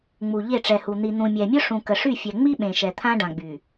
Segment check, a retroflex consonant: present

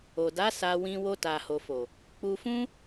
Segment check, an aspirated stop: absent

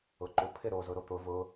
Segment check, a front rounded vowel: absent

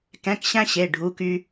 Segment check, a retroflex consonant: present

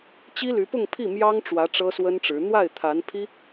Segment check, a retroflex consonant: present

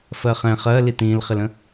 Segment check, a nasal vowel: present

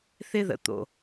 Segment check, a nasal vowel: absent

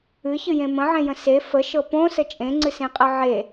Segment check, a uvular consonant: present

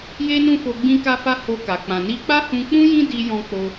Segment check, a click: absent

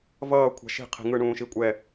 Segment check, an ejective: present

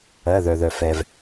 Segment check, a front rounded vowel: present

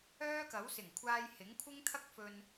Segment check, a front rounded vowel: present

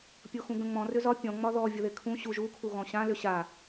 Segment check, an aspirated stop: present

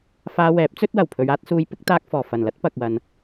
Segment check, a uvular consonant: absent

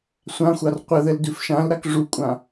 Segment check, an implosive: absent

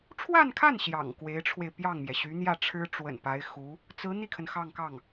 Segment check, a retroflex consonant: present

